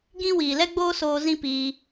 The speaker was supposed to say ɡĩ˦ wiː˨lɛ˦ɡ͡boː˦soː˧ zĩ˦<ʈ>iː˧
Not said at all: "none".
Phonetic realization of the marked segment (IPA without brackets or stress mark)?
p